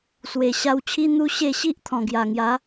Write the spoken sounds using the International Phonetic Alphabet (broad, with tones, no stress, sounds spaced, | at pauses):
s w e˨˩ ɕ a˧ w t͡ɕʰ i˦ n̪ u˦ ɕ e˥˧ ɕ i˦ ʔ t̪ʰ ɔ̃˨˩ ɡ j a˨˩ ŋ j a˨˦